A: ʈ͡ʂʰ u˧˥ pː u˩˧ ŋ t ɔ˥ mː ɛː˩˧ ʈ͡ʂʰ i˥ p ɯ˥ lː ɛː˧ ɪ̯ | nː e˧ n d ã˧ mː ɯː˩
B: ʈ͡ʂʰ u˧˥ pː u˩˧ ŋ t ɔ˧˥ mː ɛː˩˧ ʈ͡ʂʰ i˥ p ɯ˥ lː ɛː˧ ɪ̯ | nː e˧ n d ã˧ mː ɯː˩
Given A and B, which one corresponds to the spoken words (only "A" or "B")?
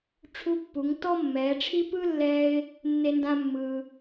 A